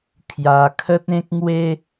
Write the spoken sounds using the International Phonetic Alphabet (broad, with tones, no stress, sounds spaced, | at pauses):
kʰ j a˧ kʰ ə˦ t̚ ẽ˦ k̚ ŋ w e˦